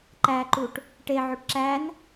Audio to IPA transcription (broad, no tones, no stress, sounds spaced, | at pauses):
ǃ æ ǃ u ʈ | ʈ e ʕ o ʈ ǁ æ n